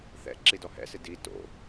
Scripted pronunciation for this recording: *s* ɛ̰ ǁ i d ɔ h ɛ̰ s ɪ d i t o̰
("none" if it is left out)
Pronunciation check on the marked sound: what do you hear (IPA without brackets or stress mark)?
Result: θ